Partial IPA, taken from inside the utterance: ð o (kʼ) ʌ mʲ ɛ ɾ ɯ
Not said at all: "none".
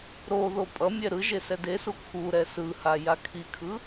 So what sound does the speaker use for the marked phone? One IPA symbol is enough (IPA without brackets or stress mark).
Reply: pʼ